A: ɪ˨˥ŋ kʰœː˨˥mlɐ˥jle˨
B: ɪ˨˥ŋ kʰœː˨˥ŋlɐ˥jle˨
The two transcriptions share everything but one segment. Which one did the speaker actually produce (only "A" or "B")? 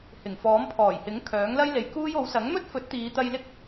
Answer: B